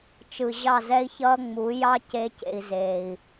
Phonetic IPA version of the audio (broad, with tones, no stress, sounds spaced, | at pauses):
t͡ʃ ɯ˨ ʑ ɑ˦˨ z ɛ˦ i̯ ç ʌː˦ ŋ͡m u˨˦ j ɑ˦ c e˦ c ḛ˧ i̯ z eː˨ i̯